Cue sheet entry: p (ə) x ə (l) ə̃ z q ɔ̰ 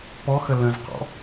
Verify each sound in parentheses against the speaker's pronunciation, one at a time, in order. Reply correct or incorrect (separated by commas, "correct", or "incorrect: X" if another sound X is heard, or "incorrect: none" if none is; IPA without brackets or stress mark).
incorrect: ɔ, correct